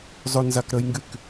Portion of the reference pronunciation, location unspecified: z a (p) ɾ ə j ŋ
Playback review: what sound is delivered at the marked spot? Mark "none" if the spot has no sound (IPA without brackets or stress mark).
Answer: k